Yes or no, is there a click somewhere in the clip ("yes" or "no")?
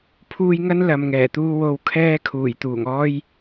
no